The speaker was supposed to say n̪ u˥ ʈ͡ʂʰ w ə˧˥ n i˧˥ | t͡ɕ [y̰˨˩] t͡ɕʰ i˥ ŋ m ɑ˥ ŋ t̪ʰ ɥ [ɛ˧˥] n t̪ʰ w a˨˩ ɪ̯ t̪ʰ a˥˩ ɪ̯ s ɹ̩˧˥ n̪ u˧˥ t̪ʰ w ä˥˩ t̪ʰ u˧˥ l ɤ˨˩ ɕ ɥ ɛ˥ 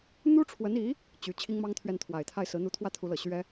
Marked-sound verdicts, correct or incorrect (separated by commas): incorrect, incorrect